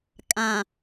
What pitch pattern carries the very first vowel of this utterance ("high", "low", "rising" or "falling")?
low